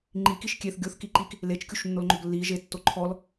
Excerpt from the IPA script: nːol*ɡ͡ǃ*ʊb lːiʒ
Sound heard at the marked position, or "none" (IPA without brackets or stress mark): ŋ͡ǃ